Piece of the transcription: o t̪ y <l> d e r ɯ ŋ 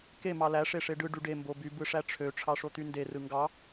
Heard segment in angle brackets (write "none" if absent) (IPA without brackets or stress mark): n